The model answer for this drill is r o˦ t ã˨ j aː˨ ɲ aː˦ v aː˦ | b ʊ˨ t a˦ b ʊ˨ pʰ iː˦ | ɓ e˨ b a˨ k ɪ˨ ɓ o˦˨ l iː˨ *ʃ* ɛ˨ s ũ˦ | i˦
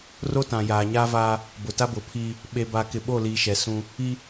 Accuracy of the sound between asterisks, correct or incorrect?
correct